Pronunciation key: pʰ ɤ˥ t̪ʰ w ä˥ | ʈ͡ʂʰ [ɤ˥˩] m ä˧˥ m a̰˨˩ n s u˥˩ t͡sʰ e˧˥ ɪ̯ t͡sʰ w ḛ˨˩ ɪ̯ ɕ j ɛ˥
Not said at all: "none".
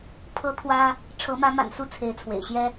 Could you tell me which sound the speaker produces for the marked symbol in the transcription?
ɤ˧˥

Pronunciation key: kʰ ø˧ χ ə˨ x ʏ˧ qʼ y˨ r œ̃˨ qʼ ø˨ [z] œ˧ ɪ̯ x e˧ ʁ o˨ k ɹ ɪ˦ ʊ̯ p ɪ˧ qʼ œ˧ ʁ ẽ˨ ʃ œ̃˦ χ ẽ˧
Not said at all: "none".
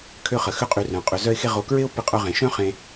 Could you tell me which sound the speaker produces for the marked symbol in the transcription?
z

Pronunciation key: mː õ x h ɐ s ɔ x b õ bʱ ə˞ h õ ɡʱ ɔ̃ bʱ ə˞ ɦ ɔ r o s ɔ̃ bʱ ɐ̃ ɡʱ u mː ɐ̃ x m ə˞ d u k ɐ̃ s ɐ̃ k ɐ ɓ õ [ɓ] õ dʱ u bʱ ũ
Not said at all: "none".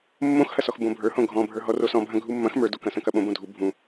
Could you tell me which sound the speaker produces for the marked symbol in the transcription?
b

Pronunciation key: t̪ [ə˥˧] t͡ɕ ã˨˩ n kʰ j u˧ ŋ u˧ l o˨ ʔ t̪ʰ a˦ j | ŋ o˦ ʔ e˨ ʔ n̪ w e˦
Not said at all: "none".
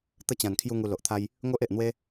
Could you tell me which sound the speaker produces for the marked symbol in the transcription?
ə˥˧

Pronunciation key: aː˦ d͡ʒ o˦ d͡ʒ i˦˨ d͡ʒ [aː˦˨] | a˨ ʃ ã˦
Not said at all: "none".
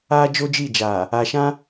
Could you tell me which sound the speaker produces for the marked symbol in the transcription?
aː˨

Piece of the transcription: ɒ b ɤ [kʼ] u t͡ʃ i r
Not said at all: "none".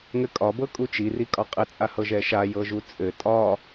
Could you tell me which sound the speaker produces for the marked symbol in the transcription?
kʼ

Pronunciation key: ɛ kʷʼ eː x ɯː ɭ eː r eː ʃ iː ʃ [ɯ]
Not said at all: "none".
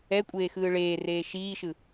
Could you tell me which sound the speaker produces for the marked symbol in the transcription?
ɯ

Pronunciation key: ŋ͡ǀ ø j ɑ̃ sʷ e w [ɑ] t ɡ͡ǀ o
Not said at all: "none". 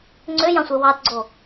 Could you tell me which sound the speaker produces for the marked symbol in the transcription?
ɑ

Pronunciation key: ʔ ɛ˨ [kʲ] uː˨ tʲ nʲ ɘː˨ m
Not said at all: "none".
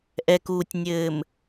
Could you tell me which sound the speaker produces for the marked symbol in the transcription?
k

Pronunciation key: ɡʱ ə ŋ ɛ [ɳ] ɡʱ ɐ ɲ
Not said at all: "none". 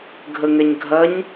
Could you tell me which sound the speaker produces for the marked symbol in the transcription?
ɲ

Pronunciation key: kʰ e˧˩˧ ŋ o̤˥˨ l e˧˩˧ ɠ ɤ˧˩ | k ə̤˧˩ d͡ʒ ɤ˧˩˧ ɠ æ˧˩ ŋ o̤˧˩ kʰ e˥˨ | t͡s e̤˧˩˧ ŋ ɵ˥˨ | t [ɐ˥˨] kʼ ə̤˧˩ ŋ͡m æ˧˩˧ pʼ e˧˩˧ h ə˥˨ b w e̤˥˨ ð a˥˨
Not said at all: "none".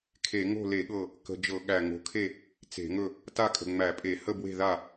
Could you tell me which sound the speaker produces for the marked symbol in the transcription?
a˥˨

